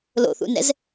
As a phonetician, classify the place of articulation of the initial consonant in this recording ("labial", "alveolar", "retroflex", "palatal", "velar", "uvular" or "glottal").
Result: alveolar